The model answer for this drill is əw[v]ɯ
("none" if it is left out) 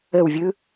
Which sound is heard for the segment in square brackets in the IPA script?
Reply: vʲ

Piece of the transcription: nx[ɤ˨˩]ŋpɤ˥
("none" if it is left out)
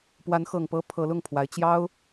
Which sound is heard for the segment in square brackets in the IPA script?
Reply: ɤ˨˩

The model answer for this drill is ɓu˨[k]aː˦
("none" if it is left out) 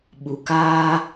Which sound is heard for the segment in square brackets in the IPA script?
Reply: k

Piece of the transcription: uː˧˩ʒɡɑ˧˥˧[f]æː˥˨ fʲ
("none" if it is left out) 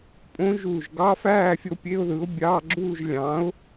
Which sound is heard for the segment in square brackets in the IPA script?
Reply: f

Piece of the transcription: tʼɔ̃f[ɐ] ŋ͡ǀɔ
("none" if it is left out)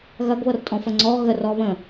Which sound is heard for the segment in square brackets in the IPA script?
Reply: ɐ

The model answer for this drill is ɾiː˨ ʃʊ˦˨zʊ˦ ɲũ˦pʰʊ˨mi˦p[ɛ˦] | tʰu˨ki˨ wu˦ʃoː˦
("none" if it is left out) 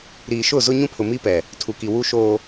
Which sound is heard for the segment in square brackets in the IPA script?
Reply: ɛ˨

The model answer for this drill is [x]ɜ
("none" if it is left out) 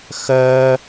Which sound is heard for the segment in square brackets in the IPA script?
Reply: x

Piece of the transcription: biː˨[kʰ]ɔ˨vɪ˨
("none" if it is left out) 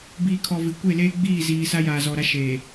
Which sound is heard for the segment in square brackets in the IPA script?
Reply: kʰ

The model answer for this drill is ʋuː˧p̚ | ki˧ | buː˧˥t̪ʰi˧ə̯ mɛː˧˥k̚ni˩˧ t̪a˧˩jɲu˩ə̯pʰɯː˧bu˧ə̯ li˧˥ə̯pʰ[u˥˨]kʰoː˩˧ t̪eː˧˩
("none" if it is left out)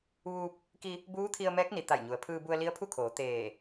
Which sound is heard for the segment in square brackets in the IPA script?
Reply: u˥˨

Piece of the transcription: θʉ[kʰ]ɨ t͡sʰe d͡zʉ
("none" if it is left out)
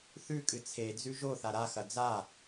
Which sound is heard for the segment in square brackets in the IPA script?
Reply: kʼ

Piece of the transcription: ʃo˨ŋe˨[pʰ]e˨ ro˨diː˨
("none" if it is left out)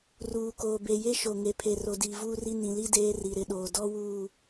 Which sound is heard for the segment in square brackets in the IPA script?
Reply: pʰ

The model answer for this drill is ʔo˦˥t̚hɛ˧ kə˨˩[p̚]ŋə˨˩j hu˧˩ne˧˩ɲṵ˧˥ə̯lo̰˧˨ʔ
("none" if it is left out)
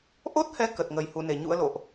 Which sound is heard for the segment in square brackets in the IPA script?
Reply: t̚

